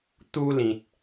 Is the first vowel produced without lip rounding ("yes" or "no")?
no